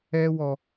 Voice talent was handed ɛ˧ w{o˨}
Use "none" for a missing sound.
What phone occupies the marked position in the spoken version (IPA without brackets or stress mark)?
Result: ɔ˨